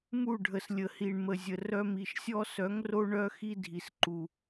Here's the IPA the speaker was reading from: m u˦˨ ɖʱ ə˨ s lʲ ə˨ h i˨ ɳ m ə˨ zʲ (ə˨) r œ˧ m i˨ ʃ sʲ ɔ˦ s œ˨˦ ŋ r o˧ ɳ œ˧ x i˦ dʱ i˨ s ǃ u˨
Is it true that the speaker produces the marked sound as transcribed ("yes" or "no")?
yes